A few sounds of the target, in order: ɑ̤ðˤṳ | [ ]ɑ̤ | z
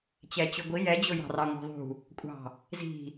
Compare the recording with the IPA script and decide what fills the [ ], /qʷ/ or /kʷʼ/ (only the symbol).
kʷʼ